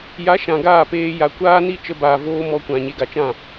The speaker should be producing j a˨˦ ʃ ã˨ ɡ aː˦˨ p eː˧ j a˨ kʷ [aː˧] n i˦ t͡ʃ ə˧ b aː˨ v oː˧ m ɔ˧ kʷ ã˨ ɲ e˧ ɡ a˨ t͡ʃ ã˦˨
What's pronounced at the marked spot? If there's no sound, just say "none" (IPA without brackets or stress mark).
aː˦